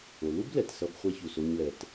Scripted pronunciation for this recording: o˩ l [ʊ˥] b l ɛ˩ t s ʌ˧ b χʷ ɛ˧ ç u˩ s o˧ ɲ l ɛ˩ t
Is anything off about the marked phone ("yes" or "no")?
yes